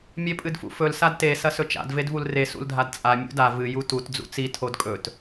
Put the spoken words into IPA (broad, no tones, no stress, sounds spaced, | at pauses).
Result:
mʲ e pʼ ɨ d f ṵ f ɵ l s a d t e s ɐ s ɵ t͡ʃ a̰ d v e d v u l r e s ṵ l dʱ a d t͡sʼ a mʲ ṵ d a v ɨ j u t u t d͡z ṵ t͡s i tʰ o d kʼ ɵ t